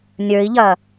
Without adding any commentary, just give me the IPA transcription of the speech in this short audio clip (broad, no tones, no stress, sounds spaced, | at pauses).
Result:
nʲ ə˞ i̯ ʎ ɐː